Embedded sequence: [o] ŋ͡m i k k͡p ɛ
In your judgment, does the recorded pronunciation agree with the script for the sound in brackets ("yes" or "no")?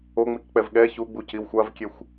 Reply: yes